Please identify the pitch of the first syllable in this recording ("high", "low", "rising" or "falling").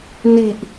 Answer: low